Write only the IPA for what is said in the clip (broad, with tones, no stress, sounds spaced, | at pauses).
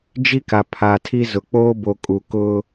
d͡ʒ i˦ k a˨ pʰ a˨ tʰ i˦ z ʊ˨ k͡p oː˦ b o˦ kʼ u˨ k ʊ˦